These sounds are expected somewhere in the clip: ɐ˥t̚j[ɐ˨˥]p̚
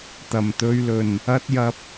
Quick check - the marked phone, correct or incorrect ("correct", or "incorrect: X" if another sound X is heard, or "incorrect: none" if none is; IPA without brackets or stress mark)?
incorrect: ɐ˧